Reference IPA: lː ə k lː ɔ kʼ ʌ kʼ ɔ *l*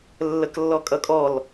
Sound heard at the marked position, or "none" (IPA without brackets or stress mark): l